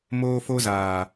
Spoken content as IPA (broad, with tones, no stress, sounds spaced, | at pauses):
m oː˦ f o˦ z aː˨